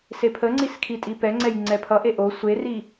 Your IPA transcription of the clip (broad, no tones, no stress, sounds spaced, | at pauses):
s e pʰ ə ŋ͡ǀ i s kʰ i tʼ i p ɛ ŋ͡ǀ ɛ j ŋ͡ǀ ɛ pʰ ʌ ʔ e ʔ o sʷ e r i